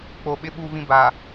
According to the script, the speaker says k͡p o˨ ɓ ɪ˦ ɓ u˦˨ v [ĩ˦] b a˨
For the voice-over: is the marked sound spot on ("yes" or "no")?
yes